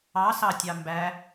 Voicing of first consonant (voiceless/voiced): voiceless